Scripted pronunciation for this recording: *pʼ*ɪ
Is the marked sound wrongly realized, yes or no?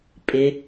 no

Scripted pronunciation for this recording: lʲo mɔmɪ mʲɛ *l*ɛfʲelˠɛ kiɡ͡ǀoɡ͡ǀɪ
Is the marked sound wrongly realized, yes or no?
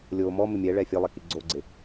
yes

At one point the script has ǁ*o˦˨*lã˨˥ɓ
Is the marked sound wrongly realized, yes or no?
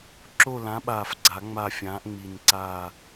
no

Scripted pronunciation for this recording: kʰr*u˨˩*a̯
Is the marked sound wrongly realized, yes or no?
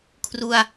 yes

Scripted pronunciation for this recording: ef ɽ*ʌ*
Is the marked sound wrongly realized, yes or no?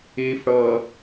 no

